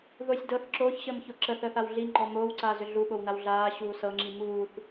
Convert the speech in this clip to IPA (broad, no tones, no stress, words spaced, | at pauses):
ðosʲ dɤθ ǁoːçɕəːmço ǁəθəːθaw ɮiŋ͡ǃɔ moːwǀaːzʏ ɮuɓownaw ɮaːɕuː sɤŋ͡ǁi muːθ